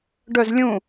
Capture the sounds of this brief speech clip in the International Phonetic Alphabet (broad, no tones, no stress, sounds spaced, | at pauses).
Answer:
ɖ œ z lʲ ũ